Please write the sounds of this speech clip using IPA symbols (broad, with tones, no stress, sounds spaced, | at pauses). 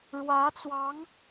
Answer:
ɻ w ä˧˥ t͡s w ɑ˧˥ ŋ